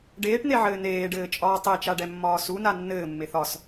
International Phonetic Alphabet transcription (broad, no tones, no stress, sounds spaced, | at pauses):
ɖ eː ʈ n̪ e ʕ ɘː n eː ɖ ɘː t͡ʃʼ ɒː tˤ e t͡ʃ a ɖ ɛ mː ɒː s u n a nː ɘː mː e θ ɒ s